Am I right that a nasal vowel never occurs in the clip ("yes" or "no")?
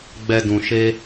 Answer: no